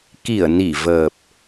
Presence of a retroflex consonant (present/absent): absent